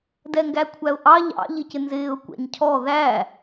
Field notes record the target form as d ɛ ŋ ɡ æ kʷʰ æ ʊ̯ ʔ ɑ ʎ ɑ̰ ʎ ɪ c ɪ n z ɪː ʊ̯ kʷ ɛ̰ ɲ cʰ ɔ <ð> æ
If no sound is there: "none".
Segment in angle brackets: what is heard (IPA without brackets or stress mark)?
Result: ð